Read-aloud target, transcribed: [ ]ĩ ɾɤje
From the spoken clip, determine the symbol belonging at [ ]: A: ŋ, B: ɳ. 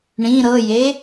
B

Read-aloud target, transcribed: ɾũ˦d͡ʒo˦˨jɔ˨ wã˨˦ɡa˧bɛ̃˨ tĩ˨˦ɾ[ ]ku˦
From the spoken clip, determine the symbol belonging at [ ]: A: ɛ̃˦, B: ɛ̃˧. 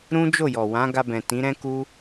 A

